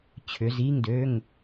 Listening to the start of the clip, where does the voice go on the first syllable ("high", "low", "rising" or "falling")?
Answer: rising